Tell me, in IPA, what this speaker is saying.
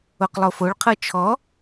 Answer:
oqlˠofoɭqʰɤ t͡ʃʰɔ

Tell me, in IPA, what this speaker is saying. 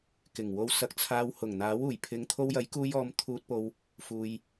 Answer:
kɪ˨˩ŋ wo˧wsɐ˧k̚t͡sʰaː˧w hʊ˨˩ŋn̪aː˨˥wuː˨˩jpʰɪ˨˧ŋ t̪ʰo˧wjɐ˨˥jkuː˧jɔː˨˧m t̪ʰuː˧t̚po˧w | fuː˧j

